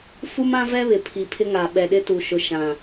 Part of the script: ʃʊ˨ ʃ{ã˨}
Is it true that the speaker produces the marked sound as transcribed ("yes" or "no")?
yes